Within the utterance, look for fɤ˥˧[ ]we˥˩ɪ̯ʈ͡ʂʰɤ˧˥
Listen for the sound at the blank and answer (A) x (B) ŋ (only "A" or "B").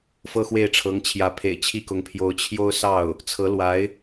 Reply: A